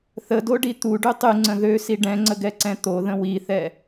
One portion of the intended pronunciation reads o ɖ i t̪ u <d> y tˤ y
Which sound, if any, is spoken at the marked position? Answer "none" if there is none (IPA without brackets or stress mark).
ɖ